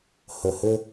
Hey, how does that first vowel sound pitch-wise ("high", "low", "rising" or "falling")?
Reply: low